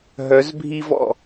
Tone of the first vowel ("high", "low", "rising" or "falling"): rising